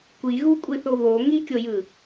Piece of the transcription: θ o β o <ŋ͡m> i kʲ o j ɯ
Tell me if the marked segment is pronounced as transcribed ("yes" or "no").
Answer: no